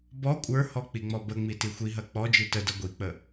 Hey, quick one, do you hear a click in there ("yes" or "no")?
no